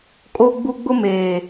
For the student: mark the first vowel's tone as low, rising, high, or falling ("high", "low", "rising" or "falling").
high